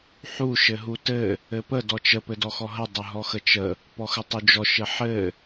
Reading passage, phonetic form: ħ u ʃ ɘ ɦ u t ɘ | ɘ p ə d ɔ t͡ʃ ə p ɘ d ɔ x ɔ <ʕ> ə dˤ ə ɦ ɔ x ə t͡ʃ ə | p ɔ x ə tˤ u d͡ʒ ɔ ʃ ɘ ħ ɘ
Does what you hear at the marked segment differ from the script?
yes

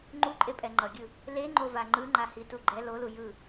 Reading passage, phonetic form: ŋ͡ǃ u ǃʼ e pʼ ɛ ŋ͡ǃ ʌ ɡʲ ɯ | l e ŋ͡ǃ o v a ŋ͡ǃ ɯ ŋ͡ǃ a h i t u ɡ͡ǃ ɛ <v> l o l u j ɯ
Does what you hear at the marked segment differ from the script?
yes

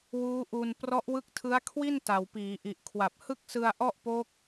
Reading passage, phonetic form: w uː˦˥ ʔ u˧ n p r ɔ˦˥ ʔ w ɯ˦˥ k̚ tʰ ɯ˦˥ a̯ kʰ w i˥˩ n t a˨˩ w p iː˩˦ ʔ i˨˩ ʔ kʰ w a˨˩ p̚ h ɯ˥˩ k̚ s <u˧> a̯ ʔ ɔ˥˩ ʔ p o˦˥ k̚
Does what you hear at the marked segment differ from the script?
yes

